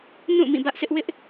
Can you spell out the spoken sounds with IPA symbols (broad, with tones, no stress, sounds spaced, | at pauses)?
n ũ˦˨ m ĩ˦˨ b ä˦ ʔ s ɪ˦ ʔ w ɪ˦ ʔ